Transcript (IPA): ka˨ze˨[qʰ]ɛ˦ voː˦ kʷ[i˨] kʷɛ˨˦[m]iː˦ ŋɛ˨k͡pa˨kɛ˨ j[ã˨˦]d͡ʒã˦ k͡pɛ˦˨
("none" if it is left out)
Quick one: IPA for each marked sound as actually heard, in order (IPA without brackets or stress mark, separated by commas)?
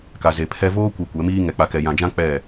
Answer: pʰ, i˨, m, ã˨